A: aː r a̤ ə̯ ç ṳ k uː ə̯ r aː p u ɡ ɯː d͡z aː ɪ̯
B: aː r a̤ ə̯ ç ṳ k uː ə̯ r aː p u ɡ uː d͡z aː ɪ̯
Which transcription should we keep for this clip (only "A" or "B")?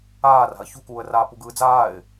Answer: A